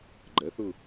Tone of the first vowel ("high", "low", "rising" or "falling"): rising